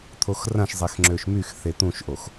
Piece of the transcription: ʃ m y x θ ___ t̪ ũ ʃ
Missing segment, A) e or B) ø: A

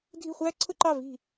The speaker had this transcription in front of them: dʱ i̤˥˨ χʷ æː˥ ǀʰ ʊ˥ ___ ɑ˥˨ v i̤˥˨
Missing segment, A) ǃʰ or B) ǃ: B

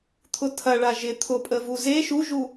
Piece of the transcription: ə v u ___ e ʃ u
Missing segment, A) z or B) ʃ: A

